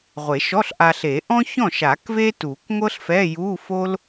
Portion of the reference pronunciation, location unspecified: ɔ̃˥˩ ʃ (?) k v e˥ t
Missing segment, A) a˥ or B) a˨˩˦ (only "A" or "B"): B